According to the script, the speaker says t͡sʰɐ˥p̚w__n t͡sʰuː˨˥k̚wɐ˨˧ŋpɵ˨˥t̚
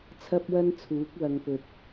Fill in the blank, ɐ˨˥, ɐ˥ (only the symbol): ɐ˥